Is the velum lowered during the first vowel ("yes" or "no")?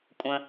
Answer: yes